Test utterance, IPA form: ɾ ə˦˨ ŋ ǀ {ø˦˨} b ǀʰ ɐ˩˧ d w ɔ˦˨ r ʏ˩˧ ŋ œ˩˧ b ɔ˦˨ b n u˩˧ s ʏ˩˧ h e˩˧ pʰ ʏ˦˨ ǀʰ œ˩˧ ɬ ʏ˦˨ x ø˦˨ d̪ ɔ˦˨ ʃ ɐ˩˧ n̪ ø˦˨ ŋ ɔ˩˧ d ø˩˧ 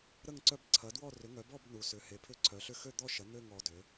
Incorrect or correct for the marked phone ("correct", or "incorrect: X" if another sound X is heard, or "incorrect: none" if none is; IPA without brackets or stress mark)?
incorrect: œ˦˨